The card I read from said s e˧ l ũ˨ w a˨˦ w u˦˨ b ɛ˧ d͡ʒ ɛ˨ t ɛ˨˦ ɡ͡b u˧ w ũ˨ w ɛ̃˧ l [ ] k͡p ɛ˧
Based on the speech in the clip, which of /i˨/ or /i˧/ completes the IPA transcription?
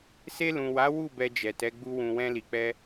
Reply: i˨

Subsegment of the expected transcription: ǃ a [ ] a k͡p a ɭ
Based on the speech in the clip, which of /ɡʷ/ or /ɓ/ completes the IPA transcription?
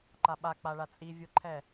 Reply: ɓ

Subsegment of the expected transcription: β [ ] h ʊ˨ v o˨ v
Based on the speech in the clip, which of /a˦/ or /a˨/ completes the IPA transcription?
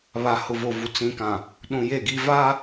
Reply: a˨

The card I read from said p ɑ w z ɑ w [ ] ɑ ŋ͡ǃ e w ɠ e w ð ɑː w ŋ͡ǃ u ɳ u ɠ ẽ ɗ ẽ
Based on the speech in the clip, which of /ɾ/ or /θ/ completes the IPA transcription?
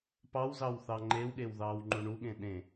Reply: θ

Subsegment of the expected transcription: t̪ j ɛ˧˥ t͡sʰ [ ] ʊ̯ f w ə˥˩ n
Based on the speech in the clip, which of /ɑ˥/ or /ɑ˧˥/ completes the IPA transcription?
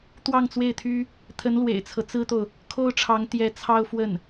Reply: ɑ˥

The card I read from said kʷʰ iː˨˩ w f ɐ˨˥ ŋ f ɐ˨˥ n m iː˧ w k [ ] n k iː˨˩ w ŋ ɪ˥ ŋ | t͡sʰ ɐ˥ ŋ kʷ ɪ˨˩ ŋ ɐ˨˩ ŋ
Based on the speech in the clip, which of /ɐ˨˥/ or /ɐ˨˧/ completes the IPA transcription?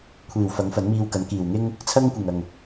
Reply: ɐ˨˥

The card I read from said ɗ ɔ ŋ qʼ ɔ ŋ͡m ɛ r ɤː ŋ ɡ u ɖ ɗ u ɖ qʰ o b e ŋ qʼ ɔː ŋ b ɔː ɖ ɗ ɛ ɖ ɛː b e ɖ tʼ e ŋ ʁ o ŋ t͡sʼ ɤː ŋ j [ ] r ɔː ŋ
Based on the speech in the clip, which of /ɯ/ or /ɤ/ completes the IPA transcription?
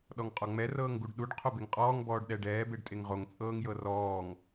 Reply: ɤ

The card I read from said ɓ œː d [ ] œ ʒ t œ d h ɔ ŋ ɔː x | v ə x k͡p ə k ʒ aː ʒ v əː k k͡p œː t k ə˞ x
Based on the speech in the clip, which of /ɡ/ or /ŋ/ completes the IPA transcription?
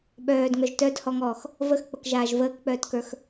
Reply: ŋ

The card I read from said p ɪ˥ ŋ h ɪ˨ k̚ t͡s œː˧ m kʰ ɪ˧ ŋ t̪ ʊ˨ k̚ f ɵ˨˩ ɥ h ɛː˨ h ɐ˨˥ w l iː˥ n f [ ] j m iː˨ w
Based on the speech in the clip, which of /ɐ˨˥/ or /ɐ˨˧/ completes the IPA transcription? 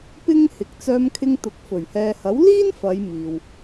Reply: ɐ˨˧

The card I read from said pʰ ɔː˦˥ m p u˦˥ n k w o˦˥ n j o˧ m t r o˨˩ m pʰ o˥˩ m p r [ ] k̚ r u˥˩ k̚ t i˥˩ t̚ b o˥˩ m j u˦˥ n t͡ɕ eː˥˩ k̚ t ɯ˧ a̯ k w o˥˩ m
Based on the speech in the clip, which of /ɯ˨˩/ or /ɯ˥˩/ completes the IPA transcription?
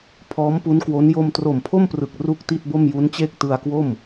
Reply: ɯ˨˩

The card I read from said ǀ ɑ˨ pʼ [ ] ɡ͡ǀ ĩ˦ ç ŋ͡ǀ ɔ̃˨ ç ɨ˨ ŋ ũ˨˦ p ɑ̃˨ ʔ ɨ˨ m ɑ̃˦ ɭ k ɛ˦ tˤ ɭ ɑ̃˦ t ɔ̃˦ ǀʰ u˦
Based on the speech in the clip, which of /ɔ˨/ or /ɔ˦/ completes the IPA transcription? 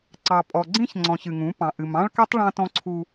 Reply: ɔ˨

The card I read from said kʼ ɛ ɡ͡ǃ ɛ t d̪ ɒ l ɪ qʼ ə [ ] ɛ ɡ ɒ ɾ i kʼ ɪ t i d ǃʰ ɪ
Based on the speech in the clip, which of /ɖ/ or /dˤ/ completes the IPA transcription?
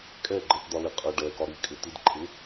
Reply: ɖ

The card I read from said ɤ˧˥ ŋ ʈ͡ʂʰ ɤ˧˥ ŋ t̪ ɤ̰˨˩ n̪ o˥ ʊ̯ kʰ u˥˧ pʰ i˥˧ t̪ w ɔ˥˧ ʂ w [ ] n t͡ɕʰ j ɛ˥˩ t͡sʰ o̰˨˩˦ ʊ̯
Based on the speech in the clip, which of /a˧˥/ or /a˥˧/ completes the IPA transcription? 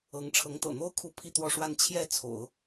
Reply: a˥˧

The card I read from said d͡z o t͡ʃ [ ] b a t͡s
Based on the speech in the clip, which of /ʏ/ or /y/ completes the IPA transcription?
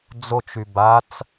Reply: y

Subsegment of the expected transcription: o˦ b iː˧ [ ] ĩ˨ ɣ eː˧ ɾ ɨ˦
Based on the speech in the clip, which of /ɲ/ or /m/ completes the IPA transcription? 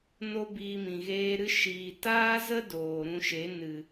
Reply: m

